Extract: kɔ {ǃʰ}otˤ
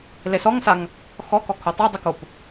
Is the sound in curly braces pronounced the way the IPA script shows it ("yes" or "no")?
no